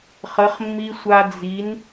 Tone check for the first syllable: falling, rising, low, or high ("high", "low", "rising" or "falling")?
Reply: rising